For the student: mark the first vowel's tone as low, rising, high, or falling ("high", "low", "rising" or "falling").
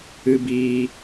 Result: low